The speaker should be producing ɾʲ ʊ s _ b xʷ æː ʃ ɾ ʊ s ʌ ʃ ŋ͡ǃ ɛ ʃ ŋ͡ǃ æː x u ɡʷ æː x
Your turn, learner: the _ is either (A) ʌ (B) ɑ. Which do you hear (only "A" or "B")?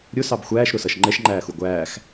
B